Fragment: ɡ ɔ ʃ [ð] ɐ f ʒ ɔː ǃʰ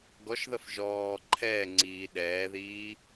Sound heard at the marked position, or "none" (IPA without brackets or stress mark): ð